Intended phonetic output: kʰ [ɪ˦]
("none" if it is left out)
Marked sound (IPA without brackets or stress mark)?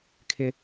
ɪ˦